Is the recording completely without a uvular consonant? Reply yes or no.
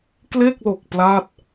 yes